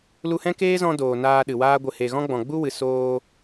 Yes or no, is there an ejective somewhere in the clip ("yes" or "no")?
no